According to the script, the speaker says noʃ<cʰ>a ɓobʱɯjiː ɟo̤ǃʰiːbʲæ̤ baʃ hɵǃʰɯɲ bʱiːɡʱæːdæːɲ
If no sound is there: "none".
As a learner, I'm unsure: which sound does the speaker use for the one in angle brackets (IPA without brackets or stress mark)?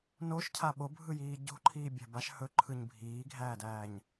cʰ